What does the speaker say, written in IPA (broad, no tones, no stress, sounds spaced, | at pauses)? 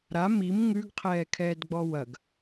ɾ a m i m ŋ ʉ ɡ qʰ ɛː kʰ ɛː d ɡ͡b ɔ w ɐ ɡ